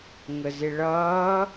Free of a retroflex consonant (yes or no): no